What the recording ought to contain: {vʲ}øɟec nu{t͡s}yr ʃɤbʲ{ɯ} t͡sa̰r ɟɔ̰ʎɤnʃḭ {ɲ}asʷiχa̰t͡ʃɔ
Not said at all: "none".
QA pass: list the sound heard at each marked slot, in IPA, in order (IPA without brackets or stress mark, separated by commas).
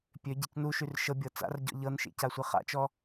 pʲ, ʃ, ɤ, c